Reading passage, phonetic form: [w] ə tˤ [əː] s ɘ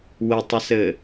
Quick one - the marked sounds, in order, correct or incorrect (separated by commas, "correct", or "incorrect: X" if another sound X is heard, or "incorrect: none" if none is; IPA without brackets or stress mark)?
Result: correct, incorrect: ə